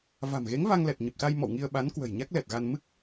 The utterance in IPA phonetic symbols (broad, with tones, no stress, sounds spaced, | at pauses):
v a̤˨˩ m ɣ e˨˦ ŋ v a˧ ŋ l ɛ˨˩ t̚ ɲ ə˨˩ p̚ s a˧ j m ɔ̰˧˨ w ŋ i˧ ə̯ ɓ a˨˦ n k w ə̤˨˩ j ɲ a˦˥ k̚ l ɛ˨˩ t̚ ɣ a˧ n m ɨ˦˥ k̚